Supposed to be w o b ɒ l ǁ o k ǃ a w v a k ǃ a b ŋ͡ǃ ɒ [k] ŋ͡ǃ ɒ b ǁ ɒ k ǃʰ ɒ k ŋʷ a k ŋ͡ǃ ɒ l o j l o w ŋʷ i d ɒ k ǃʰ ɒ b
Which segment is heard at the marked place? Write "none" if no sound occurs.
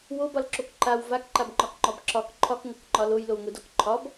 k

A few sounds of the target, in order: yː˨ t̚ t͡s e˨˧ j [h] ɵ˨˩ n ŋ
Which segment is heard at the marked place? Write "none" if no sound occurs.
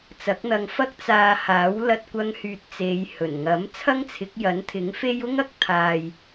h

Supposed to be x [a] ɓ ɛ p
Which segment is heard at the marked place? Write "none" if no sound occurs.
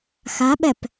a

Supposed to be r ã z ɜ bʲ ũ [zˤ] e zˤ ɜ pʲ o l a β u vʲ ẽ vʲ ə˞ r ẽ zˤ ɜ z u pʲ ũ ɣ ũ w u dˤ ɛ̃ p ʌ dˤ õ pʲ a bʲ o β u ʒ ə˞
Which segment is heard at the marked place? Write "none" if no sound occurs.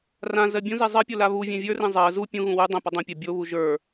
z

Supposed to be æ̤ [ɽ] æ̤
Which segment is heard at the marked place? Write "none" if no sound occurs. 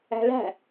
l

